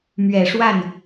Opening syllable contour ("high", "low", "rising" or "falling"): low